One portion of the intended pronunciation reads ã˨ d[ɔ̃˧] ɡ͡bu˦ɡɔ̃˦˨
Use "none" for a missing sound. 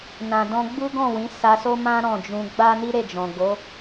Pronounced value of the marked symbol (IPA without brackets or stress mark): ɔ̃˧